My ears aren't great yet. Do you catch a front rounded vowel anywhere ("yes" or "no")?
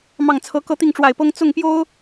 no